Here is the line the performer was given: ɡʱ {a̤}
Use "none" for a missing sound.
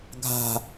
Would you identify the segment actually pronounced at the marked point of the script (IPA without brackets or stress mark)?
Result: a̤